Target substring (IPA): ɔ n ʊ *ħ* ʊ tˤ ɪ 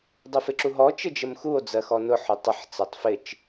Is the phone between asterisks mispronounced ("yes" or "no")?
no